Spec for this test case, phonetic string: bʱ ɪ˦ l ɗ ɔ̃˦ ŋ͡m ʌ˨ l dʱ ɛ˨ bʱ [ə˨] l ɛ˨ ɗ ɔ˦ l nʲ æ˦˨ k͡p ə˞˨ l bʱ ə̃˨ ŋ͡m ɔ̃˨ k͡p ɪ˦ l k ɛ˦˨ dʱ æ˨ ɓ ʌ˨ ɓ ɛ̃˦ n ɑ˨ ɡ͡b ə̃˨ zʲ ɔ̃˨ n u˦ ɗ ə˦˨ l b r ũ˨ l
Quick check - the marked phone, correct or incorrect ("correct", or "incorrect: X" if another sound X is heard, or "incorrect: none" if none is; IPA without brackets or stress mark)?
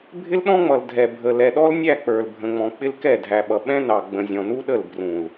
correct